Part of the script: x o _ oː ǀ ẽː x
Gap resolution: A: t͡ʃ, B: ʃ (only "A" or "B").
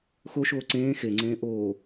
B